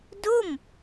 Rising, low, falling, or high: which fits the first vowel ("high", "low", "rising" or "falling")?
falling